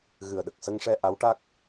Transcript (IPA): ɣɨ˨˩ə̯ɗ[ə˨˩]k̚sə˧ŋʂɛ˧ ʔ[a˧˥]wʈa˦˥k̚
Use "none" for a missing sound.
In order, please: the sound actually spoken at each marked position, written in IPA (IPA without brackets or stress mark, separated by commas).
ə˨˩, a˧˥